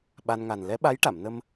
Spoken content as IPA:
ɓ a˧ n ŋ a˨˩ n l ɛ˧˥ ɓ a˧˥ j ʈ a˨˩˨ m n ə˧ m

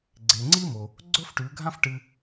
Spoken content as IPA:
ɡ͡ǀ e˩ ŋ͡ǀ i˥ m o˩ | ɡ͡ǀ ɵ˥ f ʈ ʉ˩˧ ɡʱ ã˥ f ʈ ɨ˧

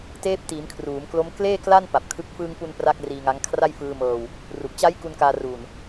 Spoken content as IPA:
t eː˦˥ p̚ t iː˩˦ m kʰ r uː˩˦ m k l o˦˥ m k l eː˥˩ k l a˥˩ n p a˨˩ p̚ kʰ ɯ˦˥ k̚ f ɯː˧ ŋ p u˧ n p r a˥˩ k̚ r iː˧ ŋ a˦˥ ŋ kʰ r a˥˩ j f ɯː˧ m ɤː˧ w | r u˨˩ k̚ t͡ɕ a˦˥ j k u˧ n k aː˧ r uː˨˩ n

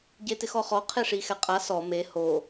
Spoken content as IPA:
ɟ e t ɪ x ɔ χ ɔ qʰ e ʂ i x ɛ qʼ a s ɔ m e h o

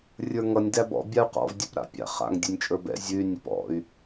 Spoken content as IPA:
rʲ ə˞ ŋ ʌ nʲ d æ b ɔ̰ bʲ a u̯ q ɔ̰ v dʲ ɛ p ɾ a̰ pʲ a̰ χ a̰ ŋ dʲ ʉ nʲ t͡ʃʼ ə˞ b ɛ̰ zʲ ʉ y̯ nʲ ʌ p ɔ̰ y̯

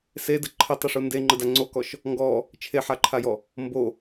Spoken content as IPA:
s e d ə ǃʰ ə tˤ ə ʂ u n d e ŋ͡ǃ ə d a ŋ͡ǀ o k ɔ ʃ | ŋ ɡ ɔ | t͡ʃʰ e ħ a ǃʰ a j ɔ | m b o

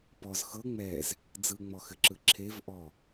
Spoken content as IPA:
p ɔ z x ɤ ŋ͡m ɛ z | d͡z ɯ ŋ͡m ɔ x ɘ ǁ ɯ ǁʰ e v ʔ ɔ

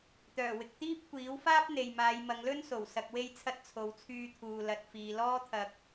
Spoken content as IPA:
t̪ œː˨˩ w ɪ˨ k̚ t̪ iː˥ p̚ kʷ iː˨˥ w f aː˥ p̚ n̪ e˨ j m aː˨˧ j m ɐ˨˧ ŋ l ɵ˥ n s o˨˩ w s ɐ˨ k̚ w e˧ j t͡sʰ ɐ˧ t̚ t͡sʰ o˨ w t͡sʰ yː˧ t̪ʰ uː˨ l ɐ˨ t̚ f iː˨ l ɔː˥ t̪ʰ ɐ˧ k̚

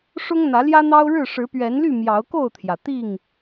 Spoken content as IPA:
ʂ ʊ˦ ŋ n̪ ä˨˦ l j ä˦ n̪ ɑ˦ ʊ̯ ɻ ɻ̩˥˨ ʂ ɻ̩˨˦ p ɥ ɛ˨˦ n l y˥˨ m j ɑ˨˦ ʊ̯ k o˥˨ ʊ̯ t̪ʰ j ä˩ t̪ i˥˨ ŋ

